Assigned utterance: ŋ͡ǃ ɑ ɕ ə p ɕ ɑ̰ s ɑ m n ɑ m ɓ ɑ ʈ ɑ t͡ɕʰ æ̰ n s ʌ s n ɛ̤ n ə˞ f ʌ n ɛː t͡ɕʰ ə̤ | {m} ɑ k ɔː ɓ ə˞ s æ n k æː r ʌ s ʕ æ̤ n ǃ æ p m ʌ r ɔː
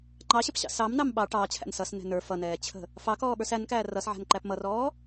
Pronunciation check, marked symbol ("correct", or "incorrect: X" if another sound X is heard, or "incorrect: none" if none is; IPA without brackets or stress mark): incorrect: f